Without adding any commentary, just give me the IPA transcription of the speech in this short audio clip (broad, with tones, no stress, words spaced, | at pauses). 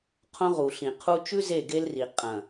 qʰõ˦ʁu˨ɬĩ˨qʰu˦ t͡ʃʉ˦ ze˦˨ɡe˦lri˨ qʼɐ̃˨